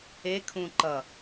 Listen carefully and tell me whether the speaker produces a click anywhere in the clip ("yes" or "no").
yes